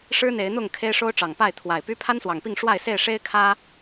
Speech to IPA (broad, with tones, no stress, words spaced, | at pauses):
ʂɻ̩˦n̪e˨˦ɪ̯n̪ʊ˥˨ŋ kʰe˦ɪ̯ʂo˦ʊ̯ʈ͡ʂɑ˨˩ŋpa˥˨ɪ̯ t̪ʰwa˨˩ɪ̯py˦ pʰa˦nswɑ˨˩ŋpi˥˨ŋ ʂwa˥˨ɪ̯se˥˨ɪ̯ ʂe˦ɪ̯kʰä˦